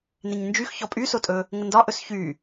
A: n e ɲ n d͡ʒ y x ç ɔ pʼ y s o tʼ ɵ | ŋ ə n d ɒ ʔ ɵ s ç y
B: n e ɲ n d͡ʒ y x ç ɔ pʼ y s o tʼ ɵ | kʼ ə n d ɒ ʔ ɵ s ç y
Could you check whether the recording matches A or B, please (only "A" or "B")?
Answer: A